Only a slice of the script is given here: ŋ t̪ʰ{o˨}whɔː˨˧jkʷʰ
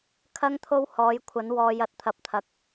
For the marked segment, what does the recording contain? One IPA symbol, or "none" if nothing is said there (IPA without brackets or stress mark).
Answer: o˥